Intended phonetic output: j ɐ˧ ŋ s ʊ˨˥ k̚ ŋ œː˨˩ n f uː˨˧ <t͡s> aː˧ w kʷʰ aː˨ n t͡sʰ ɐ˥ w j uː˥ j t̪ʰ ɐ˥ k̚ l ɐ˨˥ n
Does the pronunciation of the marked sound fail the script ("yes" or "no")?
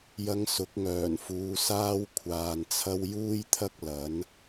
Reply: yes